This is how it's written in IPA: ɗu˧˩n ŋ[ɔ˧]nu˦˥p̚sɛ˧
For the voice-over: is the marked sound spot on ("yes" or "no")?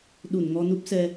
yes